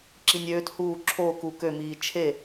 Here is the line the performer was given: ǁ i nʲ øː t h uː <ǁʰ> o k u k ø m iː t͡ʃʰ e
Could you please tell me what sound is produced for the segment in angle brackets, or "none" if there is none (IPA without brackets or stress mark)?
ǁʰ